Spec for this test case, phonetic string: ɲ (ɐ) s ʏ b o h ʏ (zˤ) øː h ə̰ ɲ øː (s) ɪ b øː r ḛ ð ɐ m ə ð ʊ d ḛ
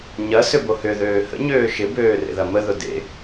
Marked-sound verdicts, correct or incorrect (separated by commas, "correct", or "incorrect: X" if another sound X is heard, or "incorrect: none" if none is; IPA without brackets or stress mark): correct, incorrect: ð, incorrect: ʃ